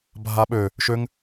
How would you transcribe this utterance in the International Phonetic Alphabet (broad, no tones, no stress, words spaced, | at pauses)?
bʱaɓø | ʃøŋ